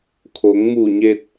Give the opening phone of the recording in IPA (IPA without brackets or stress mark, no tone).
kʰ